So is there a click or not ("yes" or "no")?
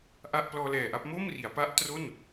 no